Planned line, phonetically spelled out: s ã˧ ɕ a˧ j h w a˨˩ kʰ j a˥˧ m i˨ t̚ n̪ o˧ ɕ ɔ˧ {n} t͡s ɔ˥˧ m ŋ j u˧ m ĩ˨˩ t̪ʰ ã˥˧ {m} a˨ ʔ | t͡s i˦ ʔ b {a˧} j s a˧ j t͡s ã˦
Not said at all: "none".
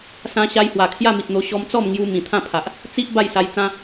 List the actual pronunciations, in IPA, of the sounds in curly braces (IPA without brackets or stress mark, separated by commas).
m, pʰ, a˥˧